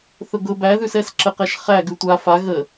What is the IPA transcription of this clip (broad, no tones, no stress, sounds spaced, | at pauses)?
θ ʊ ɡ ʊ b æ ð ʉ s ɛ s ǁ ə q ɛ ʃ χ æ ɡ ʉ tʷ a f a ɣ ə